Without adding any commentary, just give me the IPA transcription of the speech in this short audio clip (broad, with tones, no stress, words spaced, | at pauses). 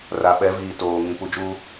ra˨ɓɛ˨˦viː˨ toː˨ ŋĩ˨ pu˨d͡ʒuː˦